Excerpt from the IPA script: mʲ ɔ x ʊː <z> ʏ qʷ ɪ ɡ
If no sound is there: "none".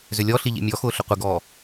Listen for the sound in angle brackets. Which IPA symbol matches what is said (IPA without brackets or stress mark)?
ɬ